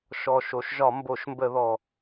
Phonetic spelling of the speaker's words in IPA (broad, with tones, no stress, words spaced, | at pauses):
ʃɔ˨˩ʃo˩˧ʃ ʒɒ˧˩˧mbo˧˩˧ʃmbə˧˩˧ðɔ˨˩